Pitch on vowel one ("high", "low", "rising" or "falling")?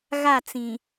falling